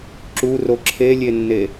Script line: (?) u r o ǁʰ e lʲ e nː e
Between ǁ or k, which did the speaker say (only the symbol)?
ǁ